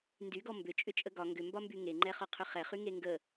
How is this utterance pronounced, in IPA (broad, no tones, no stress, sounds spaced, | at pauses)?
n d y ɡ ɔ m b ʏ t͡ʃʼ ʏ t͡ʃʼ ə ɡ ɒ ŋ ɡ ʏ m b ɒ m b y ŋ e ŋ͡ǃ ɛ χ ɒ qʰ ʏ χ ɛ χ y ŋ e ŋ ɡ ə